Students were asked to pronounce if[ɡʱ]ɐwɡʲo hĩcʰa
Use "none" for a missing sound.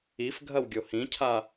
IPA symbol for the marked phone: ɡʱ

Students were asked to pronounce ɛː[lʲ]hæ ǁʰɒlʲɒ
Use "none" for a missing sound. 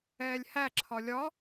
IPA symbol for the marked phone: lʲ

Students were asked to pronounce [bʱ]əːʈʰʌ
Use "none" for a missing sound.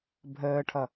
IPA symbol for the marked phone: bʱ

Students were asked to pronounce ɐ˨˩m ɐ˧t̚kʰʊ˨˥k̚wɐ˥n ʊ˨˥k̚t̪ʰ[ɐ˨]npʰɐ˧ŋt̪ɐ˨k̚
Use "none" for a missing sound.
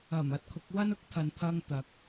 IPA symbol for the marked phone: ɐ˨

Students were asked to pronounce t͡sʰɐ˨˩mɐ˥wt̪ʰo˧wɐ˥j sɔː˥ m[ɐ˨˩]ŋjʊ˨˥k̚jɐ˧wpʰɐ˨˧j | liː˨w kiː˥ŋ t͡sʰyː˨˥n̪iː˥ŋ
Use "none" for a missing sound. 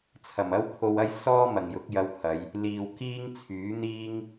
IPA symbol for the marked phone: ɐ˨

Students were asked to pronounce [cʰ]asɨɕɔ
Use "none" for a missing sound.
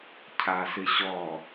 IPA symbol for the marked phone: cʰ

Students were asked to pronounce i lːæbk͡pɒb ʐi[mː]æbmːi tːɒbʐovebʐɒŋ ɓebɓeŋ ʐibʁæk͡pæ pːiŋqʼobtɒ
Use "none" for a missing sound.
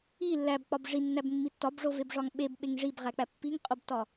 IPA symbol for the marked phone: nː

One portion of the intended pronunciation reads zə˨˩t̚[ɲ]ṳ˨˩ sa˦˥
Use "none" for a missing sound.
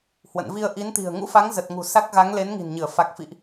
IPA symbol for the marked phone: ŋ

